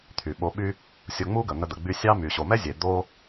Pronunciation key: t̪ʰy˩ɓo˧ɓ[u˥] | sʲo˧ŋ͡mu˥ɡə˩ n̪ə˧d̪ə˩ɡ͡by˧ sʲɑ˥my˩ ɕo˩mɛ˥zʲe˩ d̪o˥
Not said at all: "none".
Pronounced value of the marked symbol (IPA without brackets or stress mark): y˥